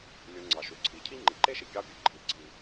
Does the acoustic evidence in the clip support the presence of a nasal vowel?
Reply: no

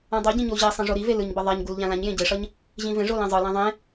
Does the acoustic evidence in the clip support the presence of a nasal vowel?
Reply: yes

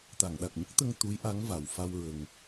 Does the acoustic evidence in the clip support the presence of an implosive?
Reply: yes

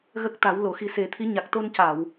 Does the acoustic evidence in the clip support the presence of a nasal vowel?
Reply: no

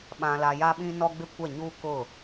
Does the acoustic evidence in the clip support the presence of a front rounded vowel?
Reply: no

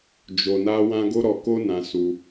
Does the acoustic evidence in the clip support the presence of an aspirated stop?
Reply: no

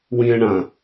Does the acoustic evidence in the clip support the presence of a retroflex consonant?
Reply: yes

